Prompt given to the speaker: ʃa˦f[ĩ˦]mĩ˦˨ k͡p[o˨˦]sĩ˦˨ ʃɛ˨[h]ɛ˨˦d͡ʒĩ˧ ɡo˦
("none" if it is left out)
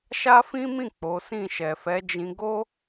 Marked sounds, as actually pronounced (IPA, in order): ĩ˦, o˨˦, f

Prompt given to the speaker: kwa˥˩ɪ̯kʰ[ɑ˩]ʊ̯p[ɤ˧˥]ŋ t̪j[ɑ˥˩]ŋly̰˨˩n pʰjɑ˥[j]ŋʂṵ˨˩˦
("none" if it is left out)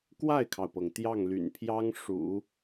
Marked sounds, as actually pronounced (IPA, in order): ɑ˩, ɤ˩, ɑ˥˩, none

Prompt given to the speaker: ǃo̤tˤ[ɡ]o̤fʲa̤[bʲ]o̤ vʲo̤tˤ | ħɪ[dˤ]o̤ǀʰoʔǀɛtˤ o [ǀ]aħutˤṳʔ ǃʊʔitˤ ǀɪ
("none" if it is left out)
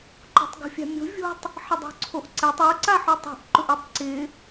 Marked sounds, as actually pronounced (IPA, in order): ɡ, mʲ, dˤ, ǀ

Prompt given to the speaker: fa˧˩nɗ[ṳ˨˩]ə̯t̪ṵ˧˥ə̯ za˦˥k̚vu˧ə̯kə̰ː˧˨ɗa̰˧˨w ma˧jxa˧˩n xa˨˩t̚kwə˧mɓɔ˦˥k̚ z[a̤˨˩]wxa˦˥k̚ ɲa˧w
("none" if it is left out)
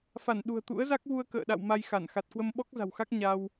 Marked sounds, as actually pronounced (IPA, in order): ṳ˨˩, a̤˨˩

